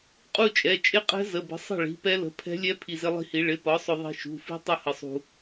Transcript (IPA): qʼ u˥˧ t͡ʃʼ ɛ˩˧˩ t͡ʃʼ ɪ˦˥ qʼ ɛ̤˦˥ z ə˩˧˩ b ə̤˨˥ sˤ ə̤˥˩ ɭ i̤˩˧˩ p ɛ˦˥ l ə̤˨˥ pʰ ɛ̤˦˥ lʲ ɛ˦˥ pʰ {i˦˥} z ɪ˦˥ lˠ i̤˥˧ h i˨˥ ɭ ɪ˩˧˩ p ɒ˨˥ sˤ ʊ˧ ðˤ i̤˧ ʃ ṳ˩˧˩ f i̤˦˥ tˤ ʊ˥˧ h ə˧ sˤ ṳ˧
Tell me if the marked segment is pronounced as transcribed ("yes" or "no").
no